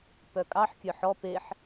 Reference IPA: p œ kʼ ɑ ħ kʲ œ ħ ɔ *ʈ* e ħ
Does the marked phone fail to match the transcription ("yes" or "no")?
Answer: yes